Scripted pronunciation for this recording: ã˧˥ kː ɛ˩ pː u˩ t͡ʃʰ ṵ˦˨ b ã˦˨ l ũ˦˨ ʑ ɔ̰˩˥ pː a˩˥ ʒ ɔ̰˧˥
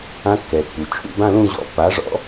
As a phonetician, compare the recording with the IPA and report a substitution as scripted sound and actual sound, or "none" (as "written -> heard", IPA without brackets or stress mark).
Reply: ʒ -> ʐ